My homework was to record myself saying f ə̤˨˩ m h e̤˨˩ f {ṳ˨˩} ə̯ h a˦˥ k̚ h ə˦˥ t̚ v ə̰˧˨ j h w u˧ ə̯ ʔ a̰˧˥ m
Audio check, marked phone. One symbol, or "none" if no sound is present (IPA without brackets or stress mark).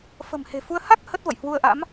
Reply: u˧